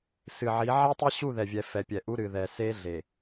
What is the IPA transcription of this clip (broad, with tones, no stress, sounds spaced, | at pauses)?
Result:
s ɨ˨ ʕ i˨˦ ʕ ɛ˦ tˤ e˦ ɕ u˦˨ ð ɛ˨ vʲ ɛ˨ f ɛ˨ pʲ ɛ˨ ʔ u˦ ɾ ɨ˨ ð ɛ˨ s e˦ ɮ e˨